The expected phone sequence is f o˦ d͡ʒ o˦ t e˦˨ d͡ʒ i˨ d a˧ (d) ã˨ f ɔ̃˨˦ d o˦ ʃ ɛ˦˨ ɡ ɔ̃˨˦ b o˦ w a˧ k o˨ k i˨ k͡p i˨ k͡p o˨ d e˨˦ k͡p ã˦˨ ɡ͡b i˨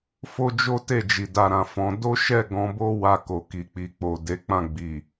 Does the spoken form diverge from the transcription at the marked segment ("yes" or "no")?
yes